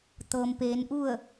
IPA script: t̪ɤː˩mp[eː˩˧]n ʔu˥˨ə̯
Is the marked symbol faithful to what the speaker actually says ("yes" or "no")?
yes